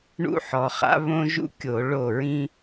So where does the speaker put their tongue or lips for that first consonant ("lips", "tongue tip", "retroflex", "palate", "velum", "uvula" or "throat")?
retroflex